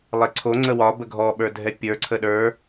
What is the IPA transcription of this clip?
lˠ e ǀʰ o ŋ͡ǀ ə w ɒ b ə ɡʱ ɔ ɓ ə˞ dʱ ɛ pʲ ə˞ ǀʰ ə ɗ ə˞

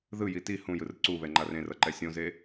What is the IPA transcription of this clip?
ð ɯ j i t i h ũ j ɯ r ǀ u β ɛ ŋ͡ǃ a r ẽ r ʌ ǃ ɛ sʲ õ z e

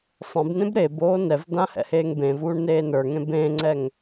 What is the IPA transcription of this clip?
sˤ ẽ b n ẽ b ɾ e b oː n ɛ v d̪ ã h ɛ̰ h eː ŋ b ẽ v uː ɳ n eː n ə˞ ŋ ẽ b ẽ ŋ͡ǀ ɛ ŋ

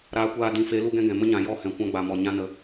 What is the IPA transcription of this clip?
ɾ aː˧ kʷ aː˧ d ĩ˨˦ f e˨˦ l u˦ ɡ ɛ̃˦ ɡ ɛ̃˨ m ə˦ ɲ ã˨ j ɔ˦˨ h ɛ̃˨ kʷ ã˧ ɡ͡b a˨ m ɔ˨ ɲ ã˧ n ə˨˦

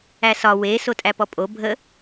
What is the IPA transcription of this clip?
æ s ɒ w e s o tʼ æ p ɔ pʼ o bʱ ə

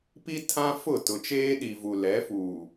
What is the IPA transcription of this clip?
p i˦ tʰ ã˦ f ʊ˦˨ t ʊ˨ t͡ʃ eː˦ ɗ i˨ v u˨ l ɛ˨˦ f uː˨

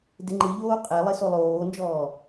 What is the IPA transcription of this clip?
d ɪ ŋ͡ǃ ɨ ʎ oː qʼ e lˠ ɪ s o lˠ oː n d͡ʒ ɔː

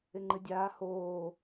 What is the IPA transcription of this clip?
ɪ ŋ͡ǃ ɨ dʲ aː h oː

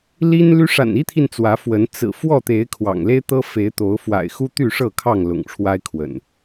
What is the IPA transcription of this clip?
l i˦ n l y˦ ʂ a̰˨˩ n i˦ t̪ʰ i˨ n t͡s w ä˨˦ f w ə˨˦ n t͡s ɹ̩˨˩ f w ɔ˥˨ t̪ e˨˦ ɪ̯ kʰ w ɑ̰˨˩ ŋ l e˦ ɪ̯ t̪ ɤ˦ f e˨˦ ɪ̯ t̪ o˨˦ ʊ̯ f w a̰˨˩ ɪ̯ x u˦ t̪ y˥˨ ʂ ɤ˥˨ kʰ ɑ˥˨ ŋ l ʊ̰˨˩ ŋ ʈ͡ʂʰ w a˦ ɪ̯ kʰ w ə̰˨˩ n

